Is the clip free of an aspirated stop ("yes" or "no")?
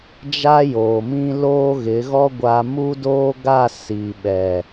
yes